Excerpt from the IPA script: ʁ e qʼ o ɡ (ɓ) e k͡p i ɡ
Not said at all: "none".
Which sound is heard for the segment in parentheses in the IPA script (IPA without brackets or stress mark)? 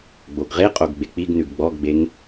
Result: ɡ͡b